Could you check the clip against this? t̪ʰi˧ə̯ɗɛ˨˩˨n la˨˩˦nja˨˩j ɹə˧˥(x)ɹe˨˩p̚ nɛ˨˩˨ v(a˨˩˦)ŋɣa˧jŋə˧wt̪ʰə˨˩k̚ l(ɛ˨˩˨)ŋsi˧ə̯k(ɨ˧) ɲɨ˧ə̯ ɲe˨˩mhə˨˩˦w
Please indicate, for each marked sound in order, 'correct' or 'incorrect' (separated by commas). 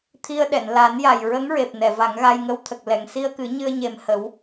incorrect, correct, correct, incorrect